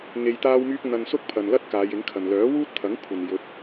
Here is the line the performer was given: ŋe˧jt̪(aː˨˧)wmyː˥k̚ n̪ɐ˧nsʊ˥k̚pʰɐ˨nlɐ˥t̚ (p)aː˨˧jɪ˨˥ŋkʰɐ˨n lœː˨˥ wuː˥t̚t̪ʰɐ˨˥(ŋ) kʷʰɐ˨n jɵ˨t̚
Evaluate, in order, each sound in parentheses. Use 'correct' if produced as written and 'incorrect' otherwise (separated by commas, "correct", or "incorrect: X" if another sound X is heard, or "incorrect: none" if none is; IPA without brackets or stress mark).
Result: incorrect: aː˥, incorrect: k, correct